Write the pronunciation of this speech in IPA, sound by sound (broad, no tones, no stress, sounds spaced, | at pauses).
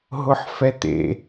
ɦ ʊ ħ f ɛ t̪ ḛ